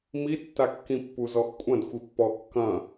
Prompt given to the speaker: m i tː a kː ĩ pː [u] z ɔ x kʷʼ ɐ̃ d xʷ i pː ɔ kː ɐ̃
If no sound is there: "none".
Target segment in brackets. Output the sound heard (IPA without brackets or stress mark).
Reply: u